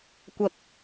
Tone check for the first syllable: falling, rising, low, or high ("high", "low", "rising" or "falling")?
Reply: low